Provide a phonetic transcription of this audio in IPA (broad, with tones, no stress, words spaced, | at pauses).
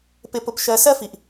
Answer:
pɪ˧pʊ˧pʃɜ˧ sɜ˥fi˩ʔ